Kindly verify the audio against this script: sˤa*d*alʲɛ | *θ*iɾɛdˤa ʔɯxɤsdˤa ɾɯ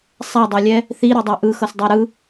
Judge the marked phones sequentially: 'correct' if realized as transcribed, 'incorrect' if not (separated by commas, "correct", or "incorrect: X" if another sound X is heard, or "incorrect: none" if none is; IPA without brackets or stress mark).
incorrect: dˤ, correct